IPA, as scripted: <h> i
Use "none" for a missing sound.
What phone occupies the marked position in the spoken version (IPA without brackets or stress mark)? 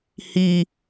h